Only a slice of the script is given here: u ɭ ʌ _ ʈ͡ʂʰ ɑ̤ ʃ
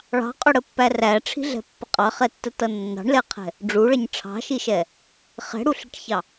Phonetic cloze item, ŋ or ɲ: ɲ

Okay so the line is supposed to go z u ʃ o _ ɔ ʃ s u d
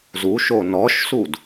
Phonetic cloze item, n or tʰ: n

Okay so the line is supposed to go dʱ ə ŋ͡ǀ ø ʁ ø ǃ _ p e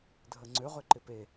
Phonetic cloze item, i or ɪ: ɪ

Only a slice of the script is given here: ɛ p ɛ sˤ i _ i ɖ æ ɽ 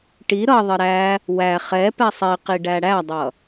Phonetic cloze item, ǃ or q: q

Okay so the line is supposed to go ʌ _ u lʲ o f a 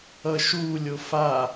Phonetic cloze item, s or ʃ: ʃ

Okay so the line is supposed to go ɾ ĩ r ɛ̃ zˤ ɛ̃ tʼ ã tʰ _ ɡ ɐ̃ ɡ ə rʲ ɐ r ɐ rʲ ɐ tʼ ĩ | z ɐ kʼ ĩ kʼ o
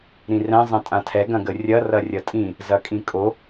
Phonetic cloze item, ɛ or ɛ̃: ɛ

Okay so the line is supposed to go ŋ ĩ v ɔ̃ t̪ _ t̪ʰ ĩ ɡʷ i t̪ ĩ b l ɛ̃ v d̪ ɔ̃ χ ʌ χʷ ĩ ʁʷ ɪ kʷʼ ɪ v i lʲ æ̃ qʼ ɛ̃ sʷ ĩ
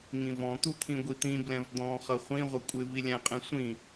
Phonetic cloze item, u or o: u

